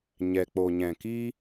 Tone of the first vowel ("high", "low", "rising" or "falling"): low